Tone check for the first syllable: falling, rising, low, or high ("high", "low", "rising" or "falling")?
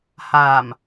low